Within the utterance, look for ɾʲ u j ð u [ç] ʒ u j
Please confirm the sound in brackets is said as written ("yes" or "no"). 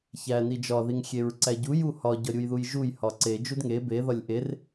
no